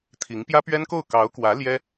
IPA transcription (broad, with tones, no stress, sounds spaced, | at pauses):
t̪ʰ i˧˥ ŋ p j ä˥ p ɥ ɛ˥ n k o˥˩ ʊ̯ k ɑ˧˥ ʊ̯ k w ä˧˥ l j ɛ˥